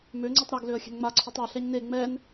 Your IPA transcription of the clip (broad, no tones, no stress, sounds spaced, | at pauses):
m ø ŋ͡ǀ i tˤ ɾ a ɡ l ø ə̯ xʲ ɛ̤ n ŋ͡m a ǀʰ u tˤ a ɬ ɛ ɲ n e ŋ͡m ɛ n